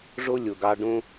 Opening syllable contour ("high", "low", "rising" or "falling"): high